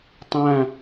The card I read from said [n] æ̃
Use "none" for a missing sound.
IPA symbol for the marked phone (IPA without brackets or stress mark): tˤ